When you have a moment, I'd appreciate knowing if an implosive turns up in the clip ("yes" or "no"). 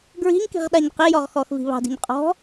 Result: yes